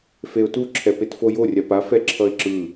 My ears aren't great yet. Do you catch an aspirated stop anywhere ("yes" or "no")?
yes